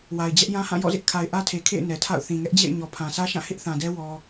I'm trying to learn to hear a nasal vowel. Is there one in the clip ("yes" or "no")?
yes